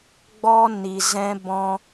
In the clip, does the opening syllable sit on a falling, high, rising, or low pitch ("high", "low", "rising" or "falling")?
high